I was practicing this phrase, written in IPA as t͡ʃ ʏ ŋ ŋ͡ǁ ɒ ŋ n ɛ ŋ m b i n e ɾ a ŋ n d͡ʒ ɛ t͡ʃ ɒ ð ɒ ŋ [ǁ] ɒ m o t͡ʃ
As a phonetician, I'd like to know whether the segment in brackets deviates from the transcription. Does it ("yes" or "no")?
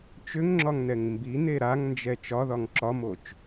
no